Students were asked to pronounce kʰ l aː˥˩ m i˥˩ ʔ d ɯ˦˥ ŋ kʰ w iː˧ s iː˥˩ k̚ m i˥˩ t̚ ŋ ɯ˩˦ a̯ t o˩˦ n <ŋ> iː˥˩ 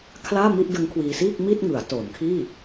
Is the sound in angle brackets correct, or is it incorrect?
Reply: incorrect